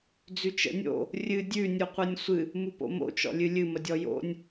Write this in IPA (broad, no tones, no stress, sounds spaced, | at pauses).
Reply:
d͡z ʉ t͡ʃ ə̰ nʲ o̰ | rʲ ɨ dʲ ʉ nʲ u qʷ ɨ nʲ sʷ ɨ | m u p o̰ m o̰ t͡ʃ ɔ̰ lʲ ɨ lʲ ɨ m ə dʲ ɔ j o̰ nʲ